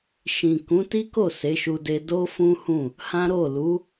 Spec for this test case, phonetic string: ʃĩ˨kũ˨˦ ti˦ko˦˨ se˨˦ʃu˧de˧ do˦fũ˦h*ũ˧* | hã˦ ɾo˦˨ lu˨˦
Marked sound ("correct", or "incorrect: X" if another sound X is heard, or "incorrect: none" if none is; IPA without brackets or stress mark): incorrect: ũ˦˨